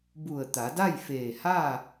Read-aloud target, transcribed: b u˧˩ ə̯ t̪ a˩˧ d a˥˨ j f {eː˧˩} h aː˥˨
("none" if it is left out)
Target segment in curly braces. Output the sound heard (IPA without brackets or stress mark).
eː˧˩